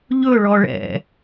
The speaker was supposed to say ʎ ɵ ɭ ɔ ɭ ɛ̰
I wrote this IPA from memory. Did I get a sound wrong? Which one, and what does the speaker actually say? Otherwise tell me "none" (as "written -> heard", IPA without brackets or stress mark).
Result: none